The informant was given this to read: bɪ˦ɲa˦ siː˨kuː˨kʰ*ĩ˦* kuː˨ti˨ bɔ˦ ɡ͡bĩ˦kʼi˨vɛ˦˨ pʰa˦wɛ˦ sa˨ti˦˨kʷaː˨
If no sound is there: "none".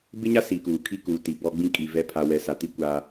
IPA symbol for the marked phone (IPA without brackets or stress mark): i˦